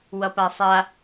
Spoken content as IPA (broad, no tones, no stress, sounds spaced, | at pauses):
w ʌ p a sˤ a